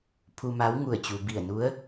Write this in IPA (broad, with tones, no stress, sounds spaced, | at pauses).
pʰ u˧ m a˧˥ w ŋ u˧˩ ə̯ t͡ɕ u˩ b i˧˩ ə̯ n u˧˥ ə̯